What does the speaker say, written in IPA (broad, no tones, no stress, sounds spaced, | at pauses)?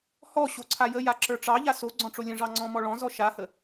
h ɔ ɕ o ǀʰ a j ə j a ǁ ə˞ ʈ͡ʂ ɑ ʎ a s o ɡ͡ǀ ɔ̃ ʈ͡ʂ o lʲ ə̃ ʐ ɑ ŋ͡ǀ ɔ̃ m ɔ ɭ ɔ̃ z ɔ ʃ a h ə